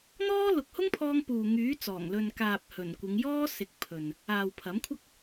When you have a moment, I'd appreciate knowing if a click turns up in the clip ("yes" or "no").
no